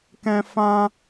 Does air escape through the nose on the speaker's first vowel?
yes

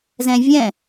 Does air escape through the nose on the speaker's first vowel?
yes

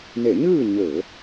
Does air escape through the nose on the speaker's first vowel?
no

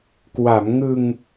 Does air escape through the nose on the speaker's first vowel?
no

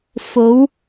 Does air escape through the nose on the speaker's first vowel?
no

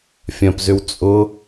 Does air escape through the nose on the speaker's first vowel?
yes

